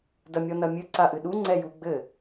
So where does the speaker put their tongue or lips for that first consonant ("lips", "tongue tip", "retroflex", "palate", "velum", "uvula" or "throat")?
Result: tongue tip